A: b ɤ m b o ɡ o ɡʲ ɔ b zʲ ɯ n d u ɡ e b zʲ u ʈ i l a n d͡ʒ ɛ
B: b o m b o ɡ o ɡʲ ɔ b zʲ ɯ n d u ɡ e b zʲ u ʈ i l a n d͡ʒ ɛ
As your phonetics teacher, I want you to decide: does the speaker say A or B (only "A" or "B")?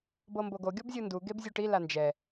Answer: A